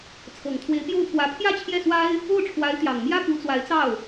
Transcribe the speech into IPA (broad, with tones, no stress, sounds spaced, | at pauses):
t͡sʰ ɤ˨˩ ŋ t̪ʰ w e˧˥ ɪ̯ p j o˥˩ ʊ̯ pʰ w ä˧˥ pʰ j ä˥˧ t͡ɕʰ j ɛ˥˩ s w a˥ ɪ̯ | o˥˩ ʊ̯ ʈ͡ʂʰ w a˧˥ ɪ̯ t̪ j ɑ˨˩ ŋ m j ä˥ p u˧˥ t͡s w a˧˥ ɪ̯ t͡s ɑ˥˩ ʊ̯